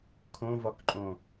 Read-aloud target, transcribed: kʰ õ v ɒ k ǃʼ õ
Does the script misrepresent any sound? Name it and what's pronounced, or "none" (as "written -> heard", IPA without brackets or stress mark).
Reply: none